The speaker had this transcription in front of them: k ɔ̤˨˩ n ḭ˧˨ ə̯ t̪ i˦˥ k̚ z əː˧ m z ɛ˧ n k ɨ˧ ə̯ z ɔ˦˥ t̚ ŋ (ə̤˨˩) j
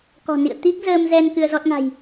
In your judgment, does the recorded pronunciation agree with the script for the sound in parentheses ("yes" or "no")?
no